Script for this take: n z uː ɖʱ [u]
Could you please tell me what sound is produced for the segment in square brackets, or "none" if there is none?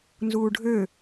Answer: ø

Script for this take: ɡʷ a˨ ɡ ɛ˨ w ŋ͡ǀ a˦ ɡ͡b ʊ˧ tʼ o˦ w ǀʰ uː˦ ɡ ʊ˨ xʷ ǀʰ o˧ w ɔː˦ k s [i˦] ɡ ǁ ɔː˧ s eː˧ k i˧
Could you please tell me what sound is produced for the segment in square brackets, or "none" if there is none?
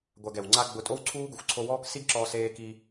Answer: i˦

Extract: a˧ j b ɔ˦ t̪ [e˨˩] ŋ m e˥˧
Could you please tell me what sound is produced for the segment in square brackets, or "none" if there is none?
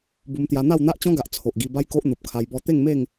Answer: e˥˧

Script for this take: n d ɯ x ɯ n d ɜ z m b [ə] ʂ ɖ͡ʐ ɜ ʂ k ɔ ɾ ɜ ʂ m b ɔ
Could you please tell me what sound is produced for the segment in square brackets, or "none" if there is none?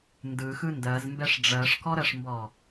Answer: ɛ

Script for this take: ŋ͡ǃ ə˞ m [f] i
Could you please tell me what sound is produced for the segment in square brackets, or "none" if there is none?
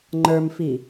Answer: f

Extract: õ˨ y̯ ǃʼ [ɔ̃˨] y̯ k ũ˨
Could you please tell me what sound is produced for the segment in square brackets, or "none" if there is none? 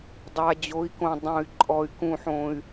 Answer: ɔ˨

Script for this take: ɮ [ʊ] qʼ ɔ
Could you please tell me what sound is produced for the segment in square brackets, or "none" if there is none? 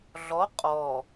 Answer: ɔ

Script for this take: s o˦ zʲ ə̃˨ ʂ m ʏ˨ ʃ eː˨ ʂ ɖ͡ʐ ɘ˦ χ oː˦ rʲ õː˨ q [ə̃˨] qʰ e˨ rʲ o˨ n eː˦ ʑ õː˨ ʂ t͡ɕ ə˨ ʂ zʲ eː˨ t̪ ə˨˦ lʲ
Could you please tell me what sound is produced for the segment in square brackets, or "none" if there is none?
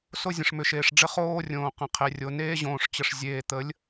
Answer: ə̃˨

